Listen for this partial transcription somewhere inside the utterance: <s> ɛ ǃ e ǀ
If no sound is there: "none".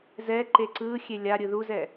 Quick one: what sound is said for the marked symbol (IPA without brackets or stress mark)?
z